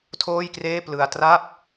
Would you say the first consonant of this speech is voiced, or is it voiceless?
voiceless